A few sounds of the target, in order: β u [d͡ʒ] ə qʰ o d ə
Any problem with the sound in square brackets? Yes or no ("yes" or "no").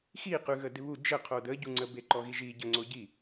no